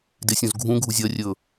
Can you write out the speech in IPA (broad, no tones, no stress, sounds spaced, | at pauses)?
d e sʲ õ z ɡʱ ũ ɡʱ u zʲ ɐ rʲ ɵ